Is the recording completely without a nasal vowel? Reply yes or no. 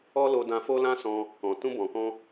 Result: no